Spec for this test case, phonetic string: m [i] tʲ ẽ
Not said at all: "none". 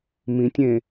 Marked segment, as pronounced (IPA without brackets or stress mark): ĩ